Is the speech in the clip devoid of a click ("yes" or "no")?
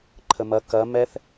no